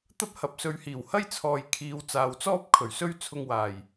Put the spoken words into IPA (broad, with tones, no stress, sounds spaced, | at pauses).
t̪ ɐ˥ p̚ h ɐ˨˥ p̚ s ɵ˨˧ ɥ h iː˨˩ w h ɐ˥ j t͡sʰ ɔː˨ j kʰ iː˨˧ w t͡s aː˨ w t͡s ɔː˥ p̚ kʰ ɵ˨˩ ɥ s ɵ˥ ɥ t͡sʰ ʊ˧ ŋ w aː˨˩ j